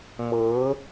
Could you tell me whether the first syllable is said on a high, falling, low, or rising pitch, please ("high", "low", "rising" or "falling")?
rising